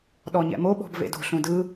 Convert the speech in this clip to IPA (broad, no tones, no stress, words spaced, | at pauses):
ɗɔɲɛ̰mo ɓɔ̤bvḛdo̤ ɬũdɯ